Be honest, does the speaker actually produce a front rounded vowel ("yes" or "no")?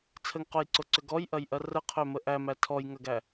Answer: yes